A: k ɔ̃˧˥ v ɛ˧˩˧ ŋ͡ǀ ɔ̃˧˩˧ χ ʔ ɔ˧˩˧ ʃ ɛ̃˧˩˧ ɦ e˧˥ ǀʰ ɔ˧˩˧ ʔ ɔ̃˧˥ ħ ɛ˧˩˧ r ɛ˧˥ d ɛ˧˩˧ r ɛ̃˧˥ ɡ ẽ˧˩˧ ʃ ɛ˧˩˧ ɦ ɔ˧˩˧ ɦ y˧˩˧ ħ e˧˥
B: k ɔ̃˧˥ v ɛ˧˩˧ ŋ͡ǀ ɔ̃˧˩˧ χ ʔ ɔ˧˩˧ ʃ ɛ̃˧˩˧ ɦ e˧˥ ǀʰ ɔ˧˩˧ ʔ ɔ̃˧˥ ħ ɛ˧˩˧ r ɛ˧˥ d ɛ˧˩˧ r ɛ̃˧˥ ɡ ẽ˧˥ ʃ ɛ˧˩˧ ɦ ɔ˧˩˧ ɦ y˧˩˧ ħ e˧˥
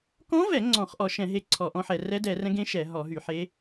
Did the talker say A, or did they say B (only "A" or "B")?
B